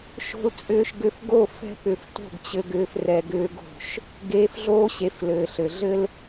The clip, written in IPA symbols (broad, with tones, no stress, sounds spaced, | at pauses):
ʃ o̤˧ l t͡sʼ ʏː˧ ʃ ɡ ʏ˧ f ɡ o˦˨ f ɛ̤˧ p ʏ˨ f t o̤˦˨ ɡ t͡ɕ ɘ˧ ɡ ʏː˧ f r ɛ˧ ɡ ʏː˦ ɡ o̤˦˨ ʃ | ɡ eː˧ f ɮ oː˦ ɕ e˨˦ f l ɘː˨ ɬ ɘ˨ ɮ ɘ˦ l